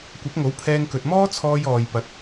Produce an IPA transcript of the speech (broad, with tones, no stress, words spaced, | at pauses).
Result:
kʷɐ˨˥p̚ŋo˨˥wpʰɛː˧ŋkɵ˨t̚ mɔː˥t͡sʰɔː˧j ɔː˨j pɐ˨˥t̚